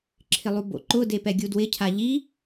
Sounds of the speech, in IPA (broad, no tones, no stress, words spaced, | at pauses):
ǁʰɪlˠubo̰ǃʊ depɛɡʲudwɪ cʰaʎi